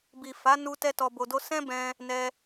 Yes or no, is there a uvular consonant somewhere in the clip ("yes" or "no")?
no